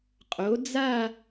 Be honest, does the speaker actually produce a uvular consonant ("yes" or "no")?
yes